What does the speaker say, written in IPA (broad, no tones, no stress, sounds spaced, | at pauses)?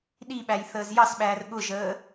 ɗ i ɓ æ j θ əː z j ɑ s ɓ æː r ɠ ʊ ʒ əː